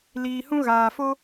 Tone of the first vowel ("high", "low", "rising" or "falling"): low